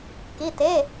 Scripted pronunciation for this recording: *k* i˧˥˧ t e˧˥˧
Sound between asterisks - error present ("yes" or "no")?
no